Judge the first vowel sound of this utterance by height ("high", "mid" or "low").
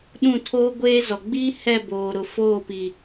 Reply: high